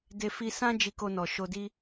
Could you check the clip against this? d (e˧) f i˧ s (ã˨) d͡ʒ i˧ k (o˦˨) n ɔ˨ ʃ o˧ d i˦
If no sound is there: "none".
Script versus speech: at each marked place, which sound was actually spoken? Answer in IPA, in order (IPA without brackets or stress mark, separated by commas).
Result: e˧, ã˦, o˧